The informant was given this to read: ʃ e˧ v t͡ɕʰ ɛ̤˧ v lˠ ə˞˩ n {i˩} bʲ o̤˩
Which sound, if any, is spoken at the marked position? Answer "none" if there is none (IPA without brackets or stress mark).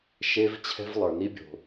i˧